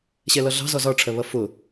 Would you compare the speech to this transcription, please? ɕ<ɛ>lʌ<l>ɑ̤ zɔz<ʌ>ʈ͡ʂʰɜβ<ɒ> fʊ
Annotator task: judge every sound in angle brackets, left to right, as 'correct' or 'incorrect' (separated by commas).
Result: correct, incorrect, incorrect, incorrect